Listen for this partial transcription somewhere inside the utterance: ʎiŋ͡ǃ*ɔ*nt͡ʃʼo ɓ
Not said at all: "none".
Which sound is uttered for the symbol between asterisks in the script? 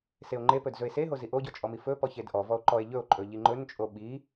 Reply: ɵ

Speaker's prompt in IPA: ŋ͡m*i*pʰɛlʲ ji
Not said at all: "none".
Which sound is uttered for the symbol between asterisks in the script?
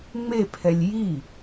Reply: e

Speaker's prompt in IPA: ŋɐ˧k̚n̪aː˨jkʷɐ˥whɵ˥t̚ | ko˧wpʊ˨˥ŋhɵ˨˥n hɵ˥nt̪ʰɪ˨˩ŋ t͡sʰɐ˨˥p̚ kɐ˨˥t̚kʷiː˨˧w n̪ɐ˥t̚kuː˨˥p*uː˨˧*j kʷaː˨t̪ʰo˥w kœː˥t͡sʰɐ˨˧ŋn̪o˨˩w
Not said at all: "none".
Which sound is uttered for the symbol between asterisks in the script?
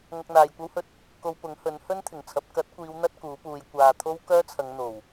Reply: uː˨˧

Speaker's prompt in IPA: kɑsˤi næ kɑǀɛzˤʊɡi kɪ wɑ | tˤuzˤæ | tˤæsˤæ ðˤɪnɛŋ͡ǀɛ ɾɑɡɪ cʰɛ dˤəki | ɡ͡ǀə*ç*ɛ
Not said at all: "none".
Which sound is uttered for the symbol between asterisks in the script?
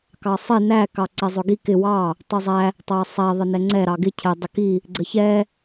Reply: ç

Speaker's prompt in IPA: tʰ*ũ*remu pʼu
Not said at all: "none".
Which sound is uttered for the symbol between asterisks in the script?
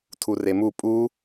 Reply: u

